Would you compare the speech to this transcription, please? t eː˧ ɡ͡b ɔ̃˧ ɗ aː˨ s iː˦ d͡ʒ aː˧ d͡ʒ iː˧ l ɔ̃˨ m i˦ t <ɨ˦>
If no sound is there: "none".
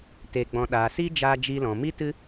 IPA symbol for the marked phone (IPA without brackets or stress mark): ɨ˦